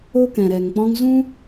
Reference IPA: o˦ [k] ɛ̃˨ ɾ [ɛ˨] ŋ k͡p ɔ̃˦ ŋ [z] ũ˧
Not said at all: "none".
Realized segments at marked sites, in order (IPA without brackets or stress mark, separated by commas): k, ɛ˨, z